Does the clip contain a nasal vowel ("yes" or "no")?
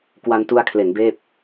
no